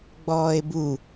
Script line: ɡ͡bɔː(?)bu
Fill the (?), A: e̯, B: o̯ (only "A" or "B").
A